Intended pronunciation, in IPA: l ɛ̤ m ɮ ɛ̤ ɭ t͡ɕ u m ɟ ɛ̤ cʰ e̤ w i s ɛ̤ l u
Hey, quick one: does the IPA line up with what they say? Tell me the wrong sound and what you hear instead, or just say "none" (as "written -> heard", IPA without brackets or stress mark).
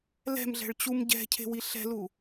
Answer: s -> ɬ